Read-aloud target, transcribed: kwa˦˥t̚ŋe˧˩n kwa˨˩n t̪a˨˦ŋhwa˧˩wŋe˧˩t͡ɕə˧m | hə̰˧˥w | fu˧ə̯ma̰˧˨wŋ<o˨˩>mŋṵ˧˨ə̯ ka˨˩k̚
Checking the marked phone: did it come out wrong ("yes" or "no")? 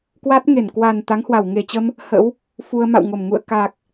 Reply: yes